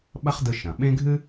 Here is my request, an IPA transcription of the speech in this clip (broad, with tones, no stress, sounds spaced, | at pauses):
ɓ ɐ˥ χ d ɯ˧ ʃ ɐ̃˩ ɓ ẽ˥ ɡʱ ɨ˥